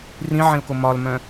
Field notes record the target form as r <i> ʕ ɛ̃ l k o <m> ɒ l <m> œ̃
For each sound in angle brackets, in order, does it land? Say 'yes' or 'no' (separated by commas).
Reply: no, yes, yes